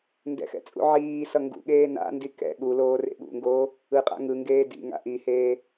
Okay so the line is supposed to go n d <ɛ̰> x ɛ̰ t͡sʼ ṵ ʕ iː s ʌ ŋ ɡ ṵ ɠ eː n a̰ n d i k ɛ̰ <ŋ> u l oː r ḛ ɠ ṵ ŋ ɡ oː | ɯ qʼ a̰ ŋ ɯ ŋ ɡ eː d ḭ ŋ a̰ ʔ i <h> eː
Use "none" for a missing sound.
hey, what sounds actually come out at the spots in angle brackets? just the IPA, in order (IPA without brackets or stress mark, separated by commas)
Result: ɛ̰, ɠ, h